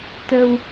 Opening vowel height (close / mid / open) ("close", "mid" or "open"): mid